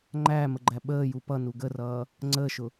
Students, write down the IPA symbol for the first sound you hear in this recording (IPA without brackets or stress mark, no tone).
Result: ŋ͡ǃ